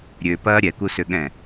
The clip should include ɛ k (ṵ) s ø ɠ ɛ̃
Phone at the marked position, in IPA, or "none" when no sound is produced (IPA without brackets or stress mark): u